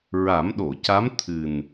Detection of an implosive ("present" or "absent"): present